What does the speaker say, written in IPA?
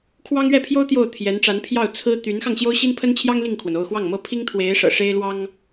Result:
kʰwɑ˥ŋɥɛ˥˩pʰjo˥ʊ̯ t̪jo˥˩ʊ̯t̪ʰjɛ˧˥nʈ͡ʂa˧˥n pʰjɑ˥˩ʊ̯t͡sʰɹ̩˥ t̪y˧˥nxɑ˧ŋ ɕjo˥ʊ̯ɕi˥npʰə˥nt͡ɕʰjɑ˥ŋ li˥˩ŋkʰwə˩n o˥˧ʊ̯xwɑ˥˩ŋmɤ˥ pʰi˥ŋt̪ʰwe˧˥ɪ̯ʂɤ̰˨˩ ʂe˥ɪ̯lwɑ˥ŋ

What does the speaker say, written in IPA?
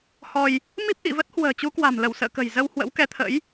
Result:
hɔ˧j | mi˦˥p̚ʔḭ˧˨və˦˥t̚ hwə̤ː˨˩t͡ɕu˨˦kwa̤˨˩mlə˧˩w sə̰ː˧˨kə̤˨˩j zə˧whwə̰˧˥w kɛ˧t̪ʰə̰˧˥j

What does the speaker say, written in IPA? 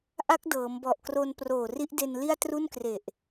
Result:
ʔa˦˥k̚dɤː˩˦mbɔ˨˩ʔkro˧n proː˨˩ri˦˥ʔde˧n li˥˩a̯tru˥˩nkre˨˩ʔ

